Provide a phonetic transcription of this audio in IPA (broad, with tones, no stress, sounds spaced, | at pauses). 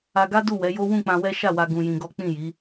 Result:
a˧ ɡ a˦ d u˦˨ w ɛ˨˦ j o˦ w ũ˦˨ k͡p ã˧ w ɛ˦ ʃ a˦˨ w a˧ ɡ ũ˧ j ĩ˧ ɡ ɔ˦ k͡p ĩ˦˨ j i˨˦